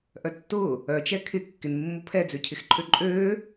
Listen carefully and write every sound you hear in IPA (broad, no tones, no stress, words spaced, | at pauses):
ʔœtːʊː | œt͡ʃɛ kʰɪ kːɪnmːʊ pʰɛd͡zøcʰɪx ǃʰøǃʼøː